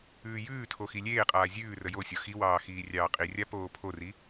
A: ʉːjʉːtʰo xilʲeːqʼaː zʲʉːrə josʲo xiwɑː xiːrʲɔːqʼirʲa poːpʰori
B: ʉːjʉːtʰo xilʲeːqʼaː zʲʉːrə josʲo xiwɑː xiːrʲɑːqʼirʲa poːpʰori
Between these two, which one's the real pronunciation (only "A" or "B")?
B